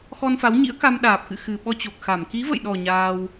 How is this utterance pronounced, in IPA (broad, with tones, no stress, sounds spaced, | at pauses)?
x ɔ˧ n f a˨˦ w ɲ ḭ˧˥ ə̯ k a˧ m ɗ aː˨˩ p̚ k ɨ̰˧˨ x ɨ˨˩ ɓ ɔ˧ t͡ɕ o˨˩ k̚ x a˧˩ m k i˨˦ v ə̰˧˨ j ɗ ɔ˨˩ ɲ aː˧ w